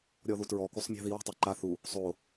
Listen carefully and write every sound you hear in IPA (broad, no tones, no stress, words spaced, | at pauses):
ɾʲɔðutɹɔ kusˤmʲa̤ði wa̤tˤɯ ǃa θu | sˤo